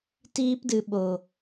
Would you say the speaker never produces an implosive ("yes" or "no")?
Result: no